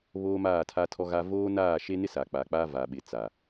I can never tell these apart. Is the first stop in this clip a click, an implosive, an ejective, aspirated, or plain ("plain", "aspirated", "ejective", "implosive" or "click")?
aspirated